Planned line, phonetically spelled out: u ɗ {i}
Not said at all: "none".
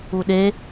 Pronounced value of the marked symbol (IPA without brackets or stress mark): e